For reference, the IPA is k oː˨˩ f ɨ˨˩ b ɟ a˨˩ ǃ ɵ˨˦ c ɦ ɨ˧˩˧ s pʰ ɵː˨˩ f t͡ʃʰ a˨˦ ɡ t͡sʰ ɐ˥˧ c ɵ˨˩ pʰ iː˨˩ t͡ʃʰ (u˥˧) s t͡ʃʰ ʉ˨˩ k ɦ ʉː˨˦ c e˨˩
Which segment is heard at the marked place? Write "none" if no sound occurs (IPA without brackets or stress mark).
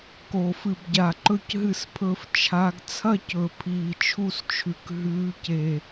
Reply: u˥˧